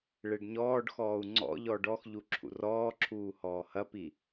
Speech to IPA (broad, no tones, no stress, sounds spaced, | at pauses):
ɭ e ɖ ɲ ɔː ɖ x ɔː u̯ ŋ͡ǀ ɔ̰ ʎ ɔ ɖ ɔ x ʎ u ǁʰ ṵ r ɔː ǁʰ uː h ɔː h ɐ p i